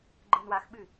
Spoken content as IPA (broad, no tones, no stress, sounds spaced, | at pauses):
ɡ͡ǃ ɯ n w a x ɓ ɨ